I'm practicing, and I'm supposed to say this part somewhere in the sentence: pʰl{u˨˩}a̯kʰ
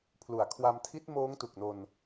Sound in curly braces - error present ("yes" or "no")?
yes